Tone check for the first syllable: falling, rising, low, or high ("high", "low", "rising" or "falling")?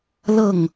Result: falling